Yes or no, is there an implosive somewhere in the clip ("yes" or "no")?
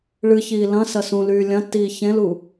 no